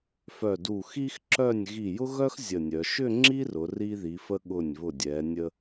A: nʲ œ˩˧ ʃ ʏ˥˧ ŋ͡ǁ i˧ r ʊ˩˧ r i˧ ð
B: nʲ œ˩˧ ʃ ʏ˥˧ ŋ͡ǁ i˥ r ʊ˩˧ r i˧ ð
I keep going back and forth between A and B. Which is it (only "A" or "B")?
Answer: B